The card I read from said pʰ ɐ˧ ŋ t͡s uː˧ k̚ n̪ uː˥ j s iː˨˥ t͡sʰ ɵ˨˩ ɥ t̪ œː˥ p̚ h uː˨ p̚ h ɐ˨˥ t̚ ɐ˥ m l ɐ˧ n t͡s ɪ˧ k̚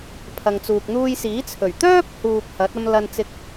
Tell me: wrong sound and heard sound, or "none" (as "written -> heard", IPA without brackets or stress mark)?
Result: none